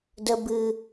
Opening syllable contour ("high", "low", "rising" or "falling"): low